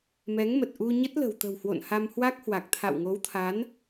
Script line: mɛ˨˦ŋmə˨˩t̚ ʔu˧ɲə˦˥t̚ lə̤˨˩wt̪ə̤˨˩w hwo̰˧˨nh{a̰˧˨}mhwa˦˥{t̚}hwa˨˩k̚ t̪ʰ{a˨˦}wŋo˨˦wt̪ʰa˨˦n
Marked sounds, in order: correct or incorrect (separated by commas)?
incorrect, incorrect, incorrect